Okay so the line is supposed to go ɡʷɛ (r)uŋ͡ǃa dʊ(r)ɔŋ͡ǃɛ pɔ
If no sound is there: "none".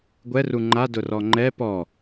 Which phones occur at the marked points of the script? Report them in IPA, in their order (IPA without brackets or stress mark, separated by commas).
r, r